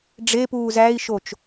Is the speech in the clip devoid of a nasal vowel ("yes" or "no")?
yes